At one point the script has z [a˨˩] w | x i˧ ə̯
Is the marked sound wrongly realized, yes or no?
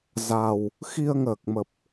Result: no